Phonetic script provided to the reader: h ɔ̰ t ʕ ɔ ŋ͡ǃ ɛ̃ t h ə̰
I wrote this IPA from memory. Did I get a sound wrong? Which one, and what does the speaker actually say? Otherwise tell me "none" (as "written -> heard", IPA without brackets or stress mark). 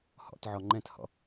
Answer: ə̰ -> ɔ̰